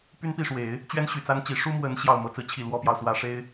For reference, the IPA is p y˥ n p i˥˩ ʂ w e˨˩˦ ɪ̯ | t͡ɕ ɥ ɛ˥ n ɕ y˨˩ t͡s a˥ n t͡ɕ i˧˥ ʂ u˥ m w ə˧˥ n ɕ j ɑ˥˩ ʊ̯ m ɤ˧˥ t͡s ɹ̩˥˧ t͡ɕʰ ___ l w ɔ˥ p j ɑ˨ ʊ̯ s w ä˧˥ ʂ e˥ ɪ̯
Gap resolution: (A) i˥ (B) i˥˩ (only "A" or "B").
B